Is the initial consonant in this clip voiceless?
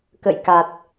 yes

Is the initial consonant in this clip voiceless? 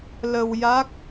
no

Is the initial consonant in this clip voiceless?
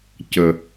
yes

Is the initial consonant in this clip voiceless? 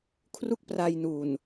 yes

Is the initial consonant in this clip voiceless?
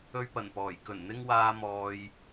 no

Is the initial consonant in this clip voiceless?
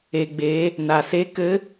no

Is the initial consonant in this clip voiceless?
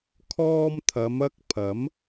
yes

